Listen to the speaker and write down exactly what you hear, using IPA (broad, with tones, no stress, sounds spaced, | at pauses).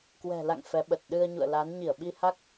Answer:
k w ɛ̤˨˩ l a̰˧˨ ŋ f ɛ˨˦ ɓ ə˨˩ t̚ ɗ ɨ˧ ə̯ ɲ ṵ˧˨ ə̯ l a˨˦ n ɲ i˧˩ ə̯ ɓ i˧ h a˦˥ k̚